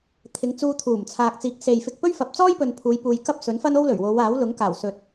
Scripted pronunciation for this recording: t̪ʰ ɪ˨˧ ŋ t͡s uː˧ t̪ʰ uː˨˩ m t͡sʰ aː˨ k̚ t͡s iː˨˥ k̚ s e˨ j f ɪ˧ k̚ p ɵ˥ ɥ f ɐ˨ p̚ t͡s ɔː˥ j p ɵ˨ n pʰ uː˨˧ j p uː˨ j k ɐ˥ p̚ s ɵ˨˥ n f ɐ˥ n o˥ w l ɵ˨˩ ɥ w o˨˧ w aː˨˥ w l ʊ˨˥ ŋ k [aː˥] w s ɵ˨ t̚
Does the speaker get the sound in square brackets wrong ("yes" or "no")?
yes